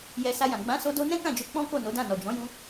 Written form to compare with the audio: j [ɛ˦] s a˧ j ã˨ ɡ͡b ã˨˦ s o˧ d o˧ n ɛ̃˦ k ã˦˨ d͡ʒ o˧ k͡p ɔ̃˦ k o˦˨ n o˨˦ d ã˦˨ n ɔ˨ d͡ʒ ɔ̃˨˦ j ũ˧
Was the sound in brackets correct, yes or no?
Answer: no